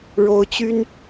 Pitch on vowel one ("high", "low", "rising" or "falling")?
high